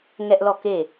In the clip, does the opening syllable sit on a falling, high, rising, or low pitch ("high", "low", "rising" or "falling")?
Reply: high